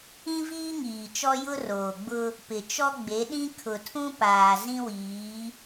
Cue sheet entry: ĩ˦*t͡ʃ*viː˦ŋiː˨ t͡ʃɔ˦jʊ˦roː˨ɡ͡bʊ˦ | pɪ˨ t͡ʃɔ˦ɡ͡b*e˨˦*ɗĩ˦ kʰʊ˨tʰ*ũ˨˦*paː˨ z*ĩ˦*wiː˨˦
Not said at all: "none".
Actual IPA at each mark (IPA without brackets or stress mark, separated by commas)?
none, e˨˦, ũ˦, ĩ˦